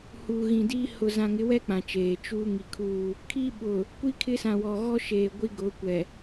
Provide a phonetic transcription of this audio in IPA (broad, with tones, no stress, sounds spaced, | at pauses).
h uː˨ ɣ ĩ˨ d iː˦ h ʊ˨ z ã˨ ŋ ɪ˨˦ w ɛ˦ k͡p ã˨ t͡ʃ eː˨ t͡ʃ uː˦ ŋ i˨ kʰ uː˦˨ | kʰ i˦ ɓ ʊ˨ | kʷ i˦ kʰ ɪ˦ s ã˨ w ɔ˨ ɣ ɔ˦ ʃ eː˨ ɡʷ i˦ ɡ ʊ˨˦ kʷ ɛ˨